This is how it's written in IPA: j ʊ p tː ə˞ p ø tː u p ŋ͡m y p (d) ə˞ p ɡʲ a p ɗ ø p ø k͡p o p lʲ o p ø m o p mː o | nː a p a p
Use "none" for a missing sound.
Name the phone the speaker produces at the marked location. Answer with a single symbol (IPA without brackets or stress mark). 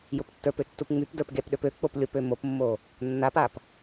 d